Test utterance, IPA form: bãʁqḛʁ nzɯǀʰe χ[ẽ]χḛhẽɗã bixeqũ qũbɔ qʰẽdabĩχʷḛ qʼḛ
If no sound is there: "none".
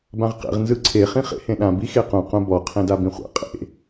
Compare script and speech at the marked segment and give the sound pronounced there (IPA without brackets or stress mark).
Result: ĩ